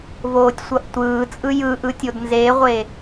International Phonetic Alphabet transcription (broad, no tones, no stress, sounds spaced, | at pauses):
v oː tʲ sʷ ʌ ʔ tʷ ɯː t͡sʼ ɯ j ɯ ʔ ɯ tʲ o d n z e ʁʷ e